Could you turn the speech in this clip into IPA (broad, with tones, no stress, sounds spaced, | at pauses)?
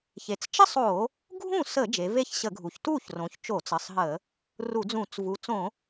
ç e˩˧ t͡s t͡ʃ ə˥˧ sˤ o˧˩˧ | ɡʱ ũ˥˩ s ə˧˩˧ d͡ʒ e˩˧ v e˥˩ ç ɕ ə˧˩˧ ɡʱ u˩˧ ç t u˥˩ ç r õ˩˧ ç t͡ʃ o˧˩˧ t͡s ə˩˧˩ sˤ ɦ ə˧˩˧ | r u˧˩˧ d͡z ũ˧˩˧ t͡s v u˩˧ t͡s õ˧˩˧